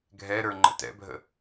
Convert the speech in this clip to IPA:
ɡʱɛɾə˞ŋ͡ǃə̰ tɛ̰bʱə̰

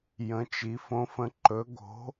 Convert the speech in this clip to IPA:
jə̃˨˦t͡ʃi˨˦ fõ˨˦fə̃˨˦ ǃɵ˨˦ ɡo̤˨˦

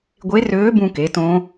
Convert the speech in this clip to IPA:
ɡʷe˧˥røː˧˥bũ˧ke˩˧ tõ˧˥

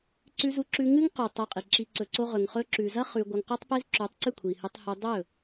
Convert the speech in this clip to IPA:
ǀʉ˧zu˧ǁʉ˧ ŋɨ˦ŋqʉ˨ tˤe˧qʼi˨ǁi˧ ǀɵ˨ǀo˧ʁɵ˨ŋ χɵ˧ǁʉ˨zɐ˦ χʉ˧ ɡʷɐ˧ŋqo˦tˤpe˦z ǁʉ˨˦tˤǀɨ˦˨kʷʰi˨hɨ˧tˤ hu˧ dˤɵ˦˨

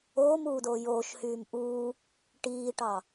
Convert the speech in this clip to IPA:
oːmuːdoː joːʃhyːm ʔuː | ʈiːʈɑ

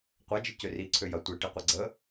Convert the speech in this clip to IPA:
qʷɐd͡ʒɪ cøri ǀʰøjɐ tʷi ʈiqʷɛɡ͡ǀə

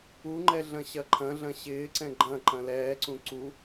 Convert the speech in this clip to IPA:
uŋ͡ǃɛ ɮɐ̃ɕɐǃʰɐ̃ɮɐ̃ ɕɪːǀɛ̃ ɡ͡ǃɐ̃ǃɐ̃ lɛːǀũ ǀu

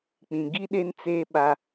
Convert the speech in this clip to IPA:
k͡pĩ˨ɡi˦ɗe˦nt͡seː˦ ɓa˦

